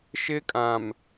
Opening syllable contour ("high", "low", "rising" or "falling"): high